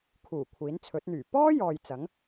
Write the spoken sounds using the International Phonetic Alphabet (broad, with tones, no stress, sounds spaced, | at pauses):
kʰ uː˨˩ kʷʰ iː˨˥ n t͡sʰ ɵ˨˥ t̚ n̪ yː˨˩ p ɔː˥ j ɔː˨ j t͡s ɐ˨˥ ŋ